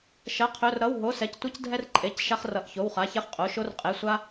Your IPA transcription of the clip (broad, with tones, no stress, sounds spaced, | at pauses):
ʃ ɐ˩˧˩ qʰ ɵ˩˧˩ r ɾ ʌ˩˧˩ w ɦ o˩˧˩ s ɛ˩˧˩ c tʷ ʌ˦ c dʱ ɛ˦ r ǃʼ e˩˧˩ c ʃ a˦ χ r ʌ˩˧˩ ʔ ç o˩˧˩ w χ a˩˧˩ ç ɛ˦ χ qʼ o˩˧˩ ʃ o˦ r qʼ e˩˧˩ sʷ a˦